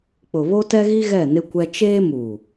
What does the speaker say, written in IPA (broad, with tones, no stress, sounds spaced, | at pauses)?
k͡p ʊ˨ β o˦ t ɛ˦ ɣ i˦ ɣ ɛ˦˨ n ɪ˦ kʷ ɛ˦ t͡ʃ eː˦ m u˨